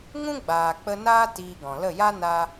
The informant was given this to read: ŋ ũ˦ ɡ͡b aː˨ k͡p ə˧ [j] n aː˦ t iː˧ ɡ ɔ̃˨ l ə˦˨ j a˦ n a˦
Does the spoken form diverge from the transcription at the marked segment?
yes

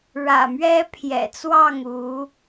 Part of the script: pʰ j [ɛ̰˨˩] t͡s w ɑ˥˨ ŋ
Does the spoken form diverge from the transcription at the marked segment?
no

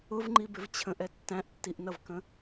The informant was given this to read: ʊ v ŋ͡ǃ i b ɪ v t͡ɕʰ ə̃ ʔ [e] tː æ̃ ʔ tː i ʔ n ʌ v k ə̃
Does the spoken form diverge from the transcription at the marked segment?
yes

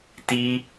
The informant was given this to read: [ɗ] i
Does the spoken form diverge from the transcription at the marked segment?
yes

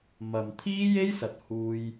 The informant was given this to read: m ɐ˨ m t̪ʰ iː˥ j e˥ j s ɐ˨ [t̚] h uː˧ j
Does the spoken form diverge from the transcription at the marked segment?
no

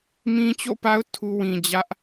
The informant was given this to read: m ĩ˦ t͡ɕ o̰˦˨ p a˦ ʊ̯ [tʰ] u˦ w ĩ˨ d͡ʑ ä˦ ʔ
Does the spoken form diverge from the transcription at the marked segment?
no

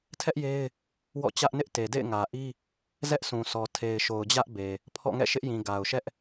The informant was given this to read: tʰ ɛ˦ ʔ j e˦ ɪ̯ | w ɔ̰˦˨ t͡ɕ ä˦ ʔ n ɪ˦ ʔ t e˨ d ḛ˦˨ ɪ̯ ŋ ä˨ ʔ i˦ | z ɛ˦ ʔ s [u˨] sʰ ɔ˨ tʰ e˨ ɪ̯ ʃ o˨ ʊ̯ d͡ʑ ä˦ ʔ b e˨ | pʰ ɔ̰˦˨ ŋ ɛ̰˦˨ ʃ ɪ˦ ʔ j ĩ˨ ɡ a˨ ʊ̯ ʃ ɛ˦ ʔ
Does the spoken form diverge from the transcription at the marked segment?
yes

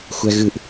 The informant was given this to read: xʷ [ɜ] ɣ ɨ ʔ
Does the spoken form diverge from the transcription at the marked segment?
yes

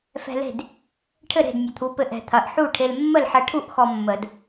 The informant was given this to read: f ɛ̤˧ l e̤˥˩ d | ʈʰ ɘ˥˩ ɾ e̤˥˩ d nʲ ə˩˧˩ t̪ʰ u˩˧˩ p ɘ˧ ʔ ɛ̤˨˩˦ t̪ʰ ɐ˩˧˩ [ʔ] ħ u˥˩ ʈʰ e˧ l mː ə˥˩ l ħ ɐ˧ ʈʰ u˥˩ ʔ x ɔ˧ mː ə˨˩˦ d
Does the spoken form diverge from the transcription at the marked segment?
no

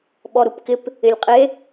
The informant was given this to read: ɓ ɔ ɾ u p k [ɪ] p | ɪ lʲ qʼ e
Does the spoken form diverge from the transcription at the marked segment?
no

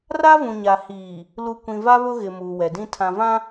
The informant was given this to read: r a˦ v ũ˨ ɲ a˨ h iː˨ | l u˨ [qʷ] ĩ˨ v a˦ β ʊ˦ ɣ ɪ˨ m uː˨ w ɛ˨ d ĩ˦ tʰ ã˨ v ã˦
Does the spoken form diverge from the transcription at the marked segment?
yes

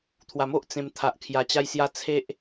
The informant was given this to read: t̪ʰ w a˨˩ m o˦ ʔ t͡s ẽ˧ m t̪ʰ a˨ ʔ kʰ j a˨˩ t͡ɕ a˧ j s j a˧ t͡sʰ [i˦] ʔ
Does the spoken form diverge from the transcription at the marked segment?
yes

